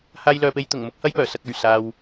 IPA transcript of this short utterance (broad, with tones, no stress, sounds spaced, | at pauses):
h aː˧ j l œː˨ p e˧ j t̪ ʊ˨˩ ŋ m ʊ˧ k̚ h ɐ˧ j p œː˨˩ s ɐ˨ k̚ ɵ˨˩ ɥ s aː˨ w